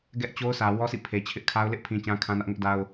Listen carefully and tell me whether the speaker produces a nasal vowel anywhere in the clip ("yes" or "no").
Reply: yes